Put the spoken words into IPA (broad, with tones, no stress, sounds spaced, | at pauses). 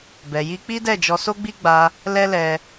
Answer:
b ɛ˨ j i˧ k͡p i˦ d ɛ˦˨ d͡ʒ ɔ˧ s o˦ ɡ͡b i˦ ɡ͡b a˧ | l ɛ˦ l ɛ˧